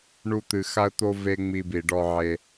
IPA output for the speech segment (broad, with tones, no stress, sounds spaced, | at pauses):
ɳ u˦ t̪ ɨ˧ x a˦ ə̯ t̪ o˦ v e˦ ŋ͡m i˧ b i˨ ɖ ɔ˧ ʕ e˧